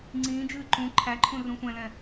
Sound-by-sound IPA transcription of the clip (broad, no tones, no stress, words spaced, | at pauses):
ŋ͡ǀĩːd͡ʒɨː ǃũ ǃʰæǃʰũ rũsʷɛ̃lɛ̃